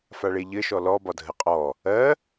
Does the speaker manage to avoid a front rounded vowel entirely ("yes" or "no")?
yes